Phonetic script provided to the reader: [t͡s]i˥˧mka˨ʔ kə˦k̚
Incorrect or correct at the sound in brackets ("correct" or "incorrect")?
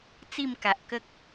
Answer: correct